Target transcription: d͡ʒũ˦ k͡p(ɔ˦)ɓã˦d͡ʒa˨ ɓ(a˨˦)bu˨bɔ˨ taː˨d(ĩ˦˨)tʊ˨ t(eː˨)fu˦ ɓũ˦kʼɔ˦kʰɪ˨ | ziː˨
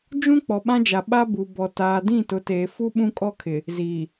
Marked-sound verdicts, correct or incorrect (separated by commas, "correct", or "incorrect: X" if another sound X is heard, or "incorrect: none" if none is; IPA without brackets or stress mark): incorrect: ɔ˨, incorrect: a˦, correct, correct